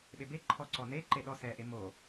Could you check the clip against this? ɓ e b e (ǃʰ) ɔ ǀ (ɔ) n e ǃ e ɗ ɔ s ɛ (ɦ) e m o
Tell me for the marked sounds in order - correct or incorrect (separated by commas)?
correct, correct, incorrect